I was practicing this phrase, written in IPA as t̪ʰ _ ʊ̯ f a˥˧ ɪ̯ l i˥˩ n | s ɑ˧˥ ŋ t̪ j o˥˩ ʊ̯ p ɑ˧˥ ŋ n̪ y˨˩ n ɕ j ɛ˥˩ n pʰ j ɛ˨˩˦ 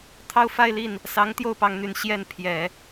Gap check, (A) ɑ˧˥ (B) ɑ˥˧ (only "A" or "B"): B